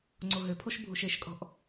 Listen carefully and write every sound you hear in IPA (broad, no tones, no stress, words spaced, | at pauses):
ŋ͡ǀoɦøpʰoʃ bʱuʃeʃkʼɔ̤ʔ